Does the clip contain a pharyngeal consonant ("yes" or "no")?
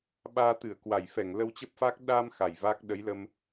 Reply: no